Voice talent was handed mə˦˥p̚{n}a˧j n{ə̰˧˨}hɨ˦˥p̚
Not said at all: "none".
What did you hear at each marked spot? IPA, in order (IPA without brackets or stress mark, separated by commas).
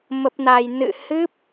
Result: n, ɨ̰˧˨